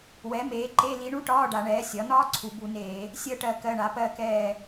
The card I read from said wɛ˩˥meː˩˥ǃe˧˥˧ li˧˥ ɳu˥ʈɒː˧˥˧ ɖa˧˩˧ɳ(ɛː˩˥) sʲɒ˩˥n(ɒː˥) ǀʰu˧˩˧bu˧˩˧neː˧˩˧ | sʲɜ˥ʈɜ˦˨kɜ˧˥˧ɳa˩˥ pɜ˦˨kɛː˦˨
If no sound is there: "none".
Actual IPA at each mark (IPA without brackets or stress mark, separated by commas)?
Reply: ɛː˩˥, ɒː˥